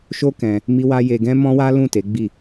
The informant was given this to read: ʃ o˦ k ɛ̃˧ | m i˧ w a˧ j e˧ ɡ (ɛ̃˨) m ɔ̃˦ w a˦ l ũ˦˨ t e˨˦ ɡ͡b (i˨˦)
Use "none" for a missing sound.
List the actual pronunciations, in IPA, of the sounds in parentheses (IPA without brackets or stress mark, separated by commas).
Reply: ɛ̃˦, i˦˨